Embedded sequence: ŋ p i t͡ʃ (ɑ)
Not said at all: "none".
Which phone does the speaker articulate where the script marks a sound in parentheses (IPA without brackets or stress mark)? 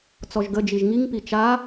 a